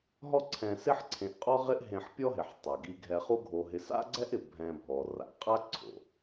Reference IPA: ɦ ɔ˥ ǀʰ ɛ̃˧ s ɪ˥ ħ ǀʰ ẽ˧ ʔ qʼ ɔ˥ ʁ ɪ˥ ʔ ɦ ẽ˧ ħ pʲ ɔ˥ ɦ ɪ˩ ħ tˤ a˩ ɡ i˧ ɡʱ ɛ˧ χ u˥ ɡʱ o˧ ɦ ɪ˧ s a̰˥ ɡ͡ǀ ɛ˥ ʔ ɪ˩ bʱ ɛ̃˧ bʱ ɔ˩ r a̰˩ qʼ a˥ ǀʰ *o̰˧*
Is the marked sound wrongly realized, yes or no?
yes